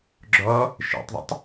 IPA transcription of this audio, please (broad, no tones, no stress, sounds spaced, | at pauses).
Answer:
ɡ͡ǁ ɔ | ʃ ḛ tˤ ðˤ ə̰ tˤ